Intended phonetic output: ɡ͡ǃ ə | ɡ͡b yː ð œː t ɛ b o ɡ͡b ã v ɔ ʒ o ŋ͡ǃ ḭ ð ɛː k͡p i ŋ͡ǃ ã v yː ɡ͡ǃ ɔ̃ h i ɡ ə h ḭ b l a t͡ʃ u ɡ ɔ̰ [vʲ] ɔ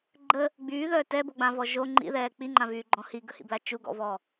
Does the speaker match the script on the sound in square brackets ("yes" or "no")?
no